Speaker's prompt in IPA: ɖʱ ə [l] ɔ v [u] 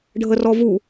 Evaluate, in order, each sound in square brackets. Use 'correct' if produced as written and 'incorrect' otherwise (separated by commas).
incorrect, correct